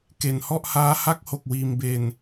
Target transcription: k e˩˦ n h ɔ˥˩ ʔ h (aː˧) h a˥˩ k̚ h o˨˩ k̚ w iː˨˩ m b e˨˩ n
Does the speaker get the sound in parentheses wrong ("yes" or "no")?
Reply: yes